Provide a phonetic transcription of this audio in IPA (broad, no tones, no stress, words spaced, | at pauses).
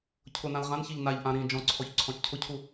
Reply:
cʰʊnãl ʁãnçiʎ naʎʔã ɾĩ d͡ʒɔ̃ǀʰɔç ǀʰɔ̃t͡ʃcʰʊcʰu